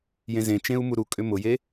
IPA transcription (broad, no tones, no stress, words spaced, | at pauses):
jẽzẽt͡ʃẽu̯ muɾukʼʏ mʊje